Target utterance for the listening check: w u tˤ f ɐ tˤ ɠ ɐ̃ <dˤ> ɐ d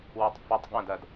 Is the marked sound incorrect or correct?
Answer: incorrect